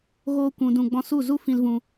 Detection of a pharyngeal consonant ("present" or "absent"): absent